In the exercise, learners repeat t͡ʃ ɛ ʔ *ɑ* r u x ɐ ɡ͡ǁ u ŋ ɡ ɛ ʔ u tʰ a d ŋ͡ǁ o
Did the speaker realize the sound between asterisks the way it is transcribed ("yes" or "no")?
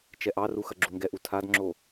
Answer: yes